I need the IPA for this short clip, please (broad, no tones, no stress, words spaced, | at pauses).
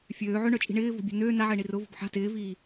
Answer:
fʲøː ʕʏɳœt͡ʃʼi̤ ɳɪːvo̤bʲɛ̤ nøː naʕɪːɳi rʊvo̤b ħa̤ tɪːviː